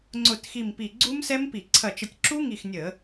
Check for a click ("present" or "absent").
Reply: present